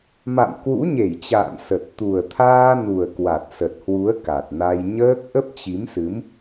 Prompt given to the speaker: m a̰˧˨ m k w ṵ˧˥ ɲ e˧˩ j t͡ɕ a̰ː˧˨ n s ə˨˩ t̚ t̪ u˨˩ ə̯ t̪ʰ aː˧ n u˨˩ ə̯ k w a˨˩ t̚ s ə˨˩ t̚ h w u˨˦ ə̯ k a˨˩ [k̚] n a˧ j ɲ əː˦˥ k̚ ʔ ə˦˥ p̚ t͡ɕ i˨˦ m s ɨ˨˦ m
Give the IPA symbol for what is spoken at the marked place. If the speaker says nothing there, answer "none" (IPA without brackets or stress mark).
t̚